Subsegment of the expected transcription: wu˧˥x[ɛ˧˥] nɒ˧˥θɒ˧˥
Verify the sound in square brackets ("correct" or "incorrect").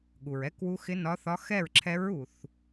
incorrect